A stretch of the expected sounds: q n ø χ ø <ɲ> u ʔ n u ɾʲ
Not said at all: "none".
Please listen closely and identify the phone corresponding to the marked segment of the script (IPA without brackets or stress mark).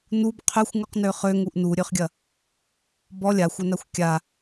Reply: ŋ